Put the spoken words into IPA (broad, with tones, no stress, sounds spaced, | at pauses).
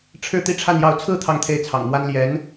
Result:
ʈ͡ʂʰ ɻ̩˥˧ t̪ i˥˧ ʈ͡ʂʰ a˥˧ n j ɑ˥˧ ʊ̯ t͡sʰ ɹ̩˥˧ t̪ʰ ɑ˥˧ ŋ t̪ʰ e˥˩ ɪ̯ t͡sʰ ɑ̰˨˩ ŋ m w a˥ n l j ɛ˧˥ n